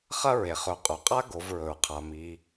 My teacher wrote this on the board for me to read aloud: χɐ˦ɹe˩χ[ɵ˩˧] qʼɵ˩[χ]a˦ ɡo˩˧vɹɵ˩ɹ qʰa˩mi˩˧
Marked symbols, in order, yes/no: yes, no

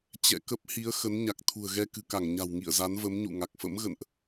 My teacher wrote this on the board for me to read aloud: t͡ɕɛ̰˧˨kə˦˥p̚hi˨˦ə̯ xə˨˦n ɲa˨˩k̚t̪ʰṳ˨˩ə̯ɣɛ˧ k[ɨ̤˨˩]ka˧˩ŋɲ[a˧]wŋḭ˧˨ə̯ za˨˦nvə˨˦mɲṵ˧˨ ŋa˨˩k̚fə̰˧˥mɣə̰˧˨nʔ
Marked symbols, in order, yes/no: yes, no

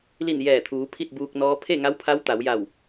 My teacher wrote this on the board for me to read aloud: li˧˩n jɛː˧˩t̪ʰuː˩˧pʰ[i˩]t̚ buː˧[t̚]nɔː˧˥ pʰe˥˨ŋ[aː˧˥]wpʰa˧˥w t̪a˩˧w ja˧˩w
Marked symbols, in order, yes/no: no, no, no

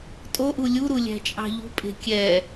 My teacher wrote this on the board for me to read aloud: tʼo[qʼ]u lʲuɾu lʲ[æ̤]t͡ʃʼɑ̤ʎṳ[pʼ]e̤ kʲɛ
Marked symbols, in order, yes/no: no, yes, yes

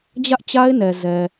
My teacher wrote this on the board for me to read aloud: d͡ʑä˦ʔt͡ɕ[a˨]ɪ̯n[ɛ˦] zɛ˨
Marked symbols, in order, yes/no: no, no

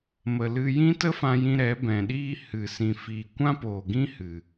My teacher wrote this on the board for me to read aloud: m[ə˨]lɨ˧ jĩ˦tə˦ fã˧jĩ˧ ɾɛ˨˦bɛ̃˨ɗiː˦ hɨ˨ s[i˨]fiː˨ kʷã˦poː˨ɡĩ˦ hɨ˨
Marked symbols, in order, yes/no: yes, no

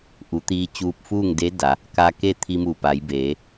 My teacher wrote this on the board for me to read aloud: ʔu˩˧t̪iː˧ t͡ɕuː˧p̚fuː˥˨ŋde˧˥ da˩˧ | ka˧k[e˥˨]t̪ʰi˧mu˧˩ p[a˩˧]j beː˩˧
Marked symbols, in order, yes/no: yes, yes

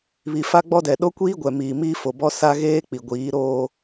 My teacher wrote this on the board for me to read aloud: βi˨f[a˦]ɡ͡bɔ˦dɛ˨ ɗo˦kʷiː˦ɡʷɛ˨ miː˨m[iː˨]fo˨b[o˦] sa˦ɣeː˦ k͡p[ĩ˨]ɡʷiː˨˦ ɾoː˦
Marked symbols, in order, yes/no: yes, no, no, no

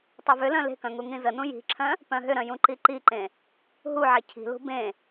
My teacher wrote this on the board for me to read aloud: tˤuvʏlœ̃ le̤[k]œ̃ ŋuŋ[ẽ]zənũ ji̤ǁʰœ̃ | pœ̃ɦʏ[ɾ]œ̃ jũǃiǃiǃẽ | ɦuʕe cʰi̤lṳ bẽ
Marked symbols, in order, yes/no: yes, no, yes

